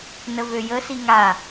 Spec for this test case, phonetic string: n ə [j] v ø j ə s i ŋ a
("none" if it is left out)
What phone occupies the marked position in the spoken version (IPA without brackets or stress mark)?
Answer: none